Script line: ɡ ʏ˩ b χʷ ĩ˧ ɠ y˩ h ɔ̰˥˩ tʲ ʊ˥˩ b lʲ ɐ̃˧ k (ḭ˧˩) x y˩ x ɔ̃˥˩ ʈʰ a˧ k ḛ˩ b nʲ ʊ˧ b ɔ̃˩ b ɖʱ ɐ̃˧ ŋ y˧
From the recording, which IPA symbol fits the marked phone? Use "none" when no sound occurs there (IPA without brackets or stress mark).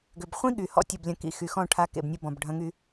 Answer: ḭ˧˩